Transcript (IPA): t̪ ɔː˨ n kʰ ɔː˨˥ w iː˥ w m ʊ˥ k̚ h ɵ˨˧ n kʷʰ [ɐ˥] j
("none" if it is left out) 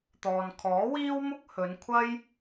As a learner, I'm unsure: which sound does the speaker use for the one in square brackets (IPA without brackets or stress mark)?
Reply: ɐ˥